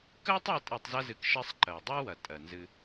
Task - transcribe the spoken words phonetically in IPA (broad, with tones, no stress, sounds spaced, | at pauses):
k ɜ˦ tˤ e˦ tʼ e˧ tˤ z ɐ˦ z ɨ˧ k ʃ ɜ˦ sˤ ǃ ɜ˨ dˤ e˦ w ɐ˨ tʼ ɜ˨ n z ɨ˧